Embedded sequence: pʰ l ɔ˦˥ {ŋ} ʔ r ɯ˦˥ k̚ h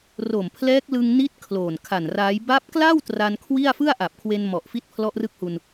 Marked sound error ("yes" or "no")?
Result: yes